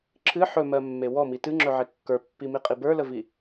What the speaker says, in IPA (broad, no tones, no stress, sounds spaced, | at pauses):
ǁʰ ɨ ħ ɵ m ɜ mː e w ɔ m i t ɨ ŋ͡ǁ ɵ ʕ e kː ə˞ pː i m i qʼ i b ə˞ l ə v i